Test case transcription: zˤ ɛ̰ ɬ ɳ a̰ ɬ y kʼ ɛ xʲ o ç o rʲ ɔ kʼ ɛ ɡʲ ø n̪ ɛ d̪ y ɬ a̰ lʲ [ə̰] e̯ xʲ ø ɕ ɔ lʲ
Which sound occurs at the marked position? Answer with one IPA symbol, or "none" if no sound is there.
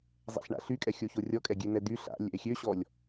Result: ɛ̰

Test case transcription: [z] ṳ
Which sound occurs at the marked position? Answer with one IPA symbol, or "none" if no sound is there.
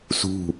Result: s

